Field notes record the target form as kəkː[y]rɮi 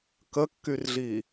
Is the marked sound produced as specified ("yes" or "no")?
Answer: yes